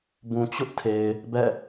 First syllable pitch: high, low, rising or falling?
low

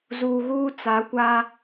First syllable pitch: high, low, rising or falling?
low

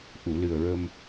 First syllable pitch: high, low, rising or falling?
low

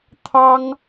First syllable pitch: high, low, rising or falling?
high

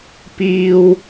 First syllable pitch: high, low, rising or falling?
high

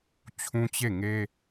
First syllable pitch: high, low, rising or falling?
high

